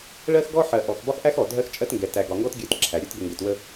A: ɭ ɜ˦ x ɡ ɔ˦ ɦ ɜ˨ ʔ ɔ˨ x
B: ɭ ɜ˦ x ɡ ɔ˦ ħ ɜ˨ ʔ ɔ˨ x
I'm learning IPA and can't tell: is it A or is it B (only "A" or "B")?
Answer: B